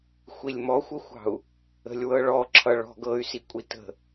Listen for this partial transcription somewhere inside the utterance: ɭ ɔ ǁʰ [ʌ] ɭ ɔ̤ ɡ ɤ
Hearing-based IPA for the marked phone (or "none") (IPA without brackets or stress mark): ʌ